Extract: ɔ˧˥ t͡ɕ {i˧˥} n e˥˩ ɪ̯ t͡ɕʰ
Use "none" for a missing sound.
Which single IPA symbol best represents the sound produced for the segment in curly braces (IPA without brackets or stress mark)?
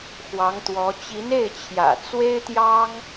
i˧˥